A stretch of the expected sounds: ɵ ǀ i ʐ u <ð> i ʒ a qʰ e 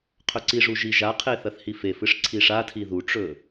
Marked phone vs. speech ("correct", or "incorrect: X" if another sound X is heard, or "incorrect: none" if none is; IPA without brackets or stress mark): incorrect: ʒ